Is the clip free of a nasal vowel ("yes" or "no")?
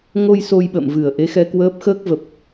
yes